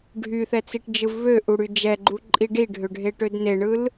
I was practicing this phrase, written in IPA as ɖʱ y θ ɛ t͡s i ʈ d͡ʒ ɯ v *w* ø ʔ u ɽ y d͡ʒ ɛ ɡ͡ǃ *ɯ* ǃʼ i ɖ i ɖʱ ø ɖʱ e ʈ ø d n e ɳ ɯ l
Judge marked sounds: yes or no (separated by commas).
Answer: no, no